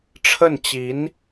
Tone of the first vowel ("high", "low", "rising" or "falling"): falling